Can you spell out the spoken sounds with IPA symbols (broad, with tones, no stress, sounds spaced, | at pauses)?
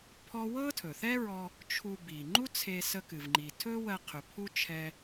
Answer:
pʰ ɔ˥ w ɤ˥ tʰ ɵ˩ θ ɛ˥ ɹ ɔ˧ | t͡ʃʰ u˧ b i˩ ŋ͡ǃ u˥ t͡sʰ e˧ s ə˧ k ɨ˩ v ŋ͡ǃ i˩ tʰ ɵ˥ w ɜ˧ qʰ ɵ˩ pʰ u˥ t͡ʃʰ ɛ˧